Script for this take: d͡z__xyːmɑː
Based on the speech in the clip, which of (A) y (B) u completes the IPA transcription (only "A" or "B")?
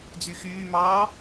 A